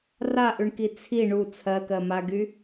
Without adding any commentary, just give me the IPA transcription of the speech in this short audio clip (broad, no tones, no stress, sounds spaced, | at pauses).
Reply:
r a ʔ ʉ ɳ k i t͡sʰ i ɳ u t͡sʰ ɜ k ɜ m a ɡ y